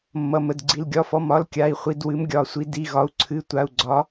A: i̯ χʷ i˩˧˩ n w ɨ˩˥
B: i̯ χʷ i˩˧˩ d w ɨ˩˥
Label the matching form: B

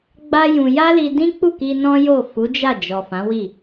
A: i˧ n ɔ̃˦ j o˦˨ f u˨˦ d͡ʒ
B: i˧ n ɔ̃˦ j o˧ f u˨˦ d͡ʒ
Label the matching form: A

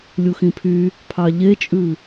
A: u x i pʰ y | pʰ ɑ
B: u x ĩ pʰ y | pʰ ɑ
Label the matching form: B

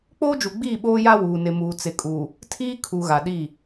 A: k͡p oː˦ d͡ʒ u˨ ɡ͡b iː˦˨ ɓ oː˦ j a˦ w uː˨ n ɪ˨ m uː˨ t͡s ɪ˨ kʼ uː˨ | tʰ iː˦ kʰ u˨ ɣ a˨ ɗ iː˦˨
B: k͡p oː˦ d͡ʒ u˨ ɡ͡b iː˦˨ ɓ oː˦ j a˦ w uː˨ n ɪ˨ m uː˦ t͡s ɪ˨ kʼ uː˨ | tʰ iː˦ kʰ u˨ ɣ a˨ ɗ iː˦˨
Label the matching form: A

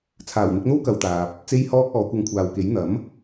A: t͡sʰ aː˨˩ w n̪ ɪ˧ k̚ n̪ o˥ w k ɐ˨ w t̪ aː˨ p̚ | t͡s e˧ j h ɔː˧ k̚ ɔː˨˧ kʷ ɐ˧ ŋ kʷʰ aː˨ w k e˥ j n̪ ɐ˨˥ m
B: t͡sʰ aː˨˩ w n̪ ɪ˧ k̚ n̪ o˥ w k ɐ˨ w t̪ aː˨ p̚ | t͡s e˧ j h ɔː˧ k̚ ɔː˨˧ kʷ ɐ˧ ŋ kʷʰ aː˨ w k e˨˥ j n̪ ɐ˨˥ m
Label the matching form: B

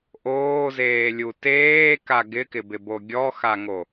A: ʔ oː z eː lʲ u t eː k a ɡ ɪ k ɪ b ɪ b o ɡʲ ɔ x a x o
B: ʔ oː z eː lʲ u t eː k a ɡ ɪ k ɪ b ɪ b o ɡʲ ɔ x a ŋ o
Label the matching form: B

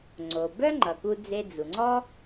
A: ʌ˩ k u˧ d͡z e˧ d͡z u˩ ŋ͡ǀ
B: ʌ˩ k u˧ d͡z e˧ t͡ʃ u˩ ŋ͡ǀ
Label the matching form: A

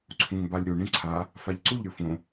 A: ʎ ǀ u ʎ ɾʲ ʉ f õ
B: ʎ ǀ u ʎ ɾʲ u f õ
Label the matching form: B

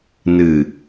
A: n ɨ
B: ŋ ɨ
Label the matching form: A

